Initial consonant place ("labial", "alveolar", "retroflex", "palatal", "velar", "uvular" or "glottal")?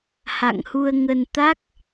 glottal